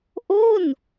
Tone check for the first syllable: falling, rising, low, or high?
falling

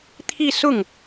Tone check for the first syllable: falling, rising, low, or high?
falling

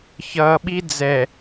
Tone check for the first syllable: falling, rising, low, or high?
low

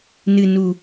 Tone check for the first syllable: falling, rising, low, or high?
low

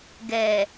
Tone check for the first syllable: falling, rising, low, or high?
low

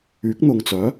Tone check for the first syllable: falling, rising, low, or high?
rising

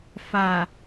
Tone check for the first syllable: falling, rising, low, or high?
low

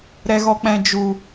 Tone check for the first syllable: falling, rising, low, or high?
low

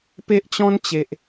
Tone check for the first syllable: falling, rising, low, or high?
high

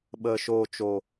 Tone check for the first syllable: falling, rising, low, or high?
low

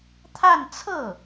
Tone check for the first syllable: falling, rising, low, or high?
falling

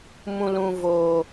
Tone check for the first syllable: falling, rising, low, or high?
low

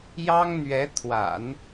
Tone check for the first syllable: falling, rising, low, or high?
high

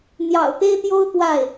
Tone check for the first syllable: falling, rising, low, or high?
low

